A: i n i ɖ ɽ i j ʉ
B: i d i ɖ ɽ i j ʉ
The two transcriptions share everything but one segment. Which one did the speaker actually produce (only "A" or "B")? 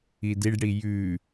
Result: B